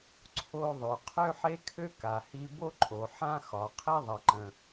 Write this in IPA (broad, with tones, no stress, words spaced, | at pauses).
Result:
ǀʰo˧ ðˤø˩qʰø˥ħe˥kʰø˥ ka˩hi˧ bo˥ǃʼo˩ ħã˥xɒ˩ qʰe˥ðˤɐ˩ǃə̃˩